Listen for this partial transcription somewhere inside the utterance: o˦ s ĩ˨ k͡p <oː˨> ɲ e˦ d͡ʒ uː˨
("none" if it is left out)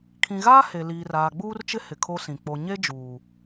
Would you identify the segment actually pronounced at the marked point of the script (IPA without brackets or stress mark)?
o˨